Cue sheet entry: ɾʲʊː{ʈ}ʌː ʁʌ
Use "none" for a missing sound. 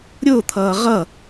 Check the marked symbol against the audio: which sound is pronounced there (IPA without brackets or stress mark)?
t̪ʰ